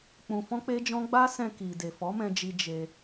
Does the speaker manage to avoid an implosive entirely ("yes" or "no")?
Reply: yes